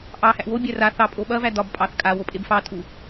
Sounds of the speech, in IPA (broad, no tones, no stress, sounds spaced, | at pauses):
ʔ ɑ h æ ʔ w o bʲ æ r a θ ɑ pʼ o ɓ ɐ v æ d ɒ b pʼ ɑ θ kʼ a w o pʼ e b f ɑ tʼ u